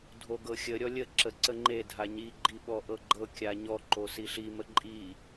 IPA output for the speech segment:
dʱ o ɡ ɤ xʲ ə ɾʲ ɔ lʲ ə ǁ ə ǀ ə ŋ͡ǃ e dʱ a ɲ i ɡ͡ǃ i ɓ ɔ ʔ ɤ ɡ͡ǃ ɤ kʲ a ɲ ɔ ǃ o s i ɬ i m ə ǃʼ i

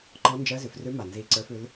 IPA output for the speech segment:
ǃ ɔ˧˥ n d͡ʒ ɜ˧˥ z ʉ˩˧ f r ʉ˧˥ m a˨˩ n z i˨˩ ǀ ə˞˧˥ f ʉ˧˥ l

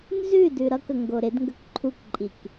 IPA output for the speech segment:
n z ʉ d ʉ ɾ ʌ k ə ŋ ɡ o ɾ ɪ d ŋ ɡ ə k ǃʰ u k ǃʼ i k

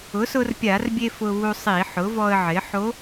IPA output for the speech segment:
ʊ˩˥ s ʊ˧ r pʲ a˧˩˧ r bʲ e˧ f ʊ˧ β u˧ sˤ i˧˩˧ ħ ʊ˩˥ v ɔ˧ ə̯ ʕ ɪ˩˥ ħ o˧˥

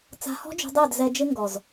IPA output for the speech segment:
t͡s a̤˧ h ɔ̤˦ d͡ʒ ṳ˧ dˤ e˦˨ d z ɛ˧ d͡ʒ ɪ˦ ŋ ɡ ɔ˨ z

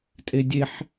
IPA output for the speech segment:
tʼ e dʲ e ħ

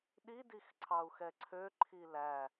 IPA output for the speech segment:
ɗ i d i x ǀʰ ɑ u̯ x ɛ ǀʰ ø ǃʰ i l æ

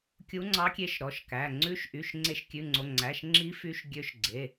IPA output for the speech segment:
kʲ u˨˦ ŋ͡ǀ ɑ˨˦ kʲ e˨˦ ʃ ɾ ɔ˩˧˩ ʃ k æ˩˧˩ ŋ͡ǀ ʉ˨˦ ʃ ʔ y˩˧˩ ʃ ŋ͡ǀ e˨˦ ʃ kʲ ʉ˩˧˩ ŋ͡ǀ o˩˧˩ ŋ͡ǀ æ˩˧˩ ʃ ŋ͡ǁ i˨˦ f y˨˦ ʃ ɡʲ ø˨˦ ʃ ɡ͡ǀ e˩˧˩

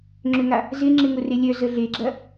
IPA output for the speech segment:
ŋ͡ǁ ʏ ŋ a | z ɪ ŋ͡ǁ ɪ ŋ ʊ r e lʲ œ z ə ɮ e ɡ͡ǁ ɐ

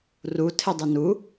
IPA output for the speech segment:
r u tʰ e dˤ ɛ n u

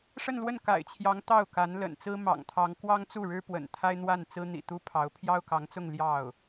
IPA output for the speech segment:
ʂ ə˥˧ n l w ə˥˩ n k a̰˨˩ ɪ̯ t͡ɕʰ j ɑ˧˥ ŋ t̪ ɑ˥˩ ʊ̯ k a˧˥ n l ə̰˨˩ n t͡s ɹ̩˥ m ɑ̰˨˩ ŋ t̪ʰ ɑ˧˥ ŋ k w ɑ˥ ŋ t͡s u˥˩ ɻ ɻ̩˥ p w ə̰˨˩ n t̪ʰ a˥ ɪ̯ n̪ w a˥˩ n t͡s ɹ̩˥ n̪ ḭ˨˩ t̪ u˥ pʰ ɑ˧˥ ʊ̯ pʰ j ɑ˥ ʊ̯ k ɑ˧˥ ŋ t͡s ʊ˥˧ ŋ l j ɑ˥˩ ʊ̯

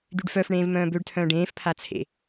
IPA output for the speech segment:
d̪ y ɖ f œ f ɳ ẽː v m œ̃ː b ø ɖ tʰ œ̃ː ɖ ẽː f pʰ a t͡sʰ ḛ

